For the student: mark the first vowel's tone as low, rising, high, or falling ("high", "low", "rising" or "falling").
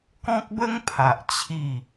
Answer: high